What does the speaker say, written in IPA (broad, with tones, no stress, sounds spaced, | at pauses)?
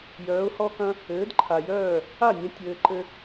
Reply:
j œː˩˥ ʊ̯ h ɔ˥ k ɐ̃˥ | ɘː˩˥ d ǃʰ a˩ j œː˥˩ | a˥˩ nʲ ɐ̃˧ tʲ ɘː˧ ǃ ɘ˥